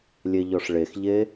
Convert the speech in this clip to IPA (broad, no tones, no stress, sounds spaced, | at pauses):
lʲ e ʎ ɔ ʂ ɭ e x ʎ e